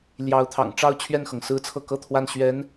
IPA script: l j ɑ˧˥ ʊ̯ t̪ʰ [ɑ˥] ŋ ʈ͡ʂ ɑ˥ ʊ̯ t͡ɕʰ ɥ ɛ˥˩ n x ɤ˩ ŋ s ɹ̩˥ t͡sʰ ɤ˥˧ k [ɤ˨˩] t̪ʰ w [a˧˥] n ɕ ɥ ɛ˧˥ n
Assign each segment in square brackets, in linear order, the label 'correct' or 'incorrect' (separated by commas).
incorrect, incorrect, incorrect